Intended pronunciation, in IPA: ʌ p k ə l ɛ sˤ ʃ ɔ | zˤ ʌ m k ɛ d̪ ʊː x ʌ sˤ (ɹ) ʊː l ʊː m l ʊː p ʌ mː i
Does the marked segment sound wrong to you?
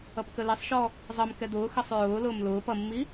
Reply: no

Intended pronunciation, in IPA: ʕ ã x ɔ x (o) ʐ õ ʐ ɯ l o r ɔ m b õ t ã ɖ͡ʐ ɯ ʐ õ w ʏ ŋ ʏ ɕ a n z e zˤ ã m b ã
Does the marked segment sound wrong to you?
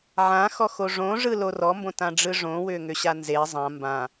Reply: no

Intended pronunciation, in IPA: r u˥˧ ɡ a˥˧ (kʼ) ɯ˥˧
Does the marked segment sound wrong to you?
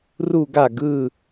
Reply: yes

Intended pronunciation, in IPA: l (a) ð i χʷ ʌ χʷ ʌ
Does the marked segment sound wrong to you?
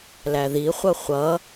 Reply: yes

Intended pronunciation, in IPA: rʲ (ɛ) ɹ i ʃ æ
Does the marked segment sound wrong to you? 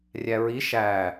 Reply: yes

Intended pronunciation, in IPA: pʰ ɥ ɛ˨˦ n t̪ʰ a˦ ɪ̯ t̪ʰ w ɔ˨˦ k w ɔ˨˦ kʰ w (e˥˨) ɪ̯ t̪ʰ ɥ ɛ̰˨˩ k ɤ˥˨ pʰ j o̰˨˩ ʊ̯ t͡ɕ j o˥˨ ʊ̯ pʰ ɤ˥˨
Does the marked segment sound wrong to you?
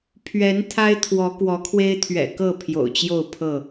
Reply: yes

